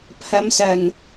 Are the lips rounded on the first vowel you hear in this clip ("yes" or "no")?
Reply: no